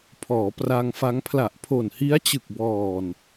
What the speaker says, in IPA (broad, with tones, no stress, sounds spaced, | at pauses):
pʰ ɔː˩˦ p r a˧ ŋ f a˦˥ ŋ pʰ l a˨˩ ʔ pʰ o˨˩ n h i˦˥ a̯ t͡ɕ ɯ˨˩ k̚ b ɔː˨˩ n